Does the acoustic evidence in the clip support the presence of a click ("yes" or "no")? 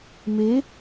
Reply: no